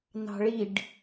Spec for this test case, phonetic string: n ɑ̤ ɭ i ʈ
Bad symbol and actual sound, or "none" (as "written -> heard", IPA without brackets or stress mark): ʈ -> ɖ